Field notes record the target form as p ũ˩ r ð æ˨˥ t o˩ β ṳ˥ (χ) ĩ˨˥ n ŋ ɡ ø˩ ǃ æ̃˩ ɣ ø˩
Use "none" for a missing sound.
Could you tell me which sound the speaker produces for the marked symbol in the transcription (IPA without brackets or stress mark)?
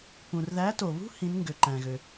h